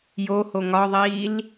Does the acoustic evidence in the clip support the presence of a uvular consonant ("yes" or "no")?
no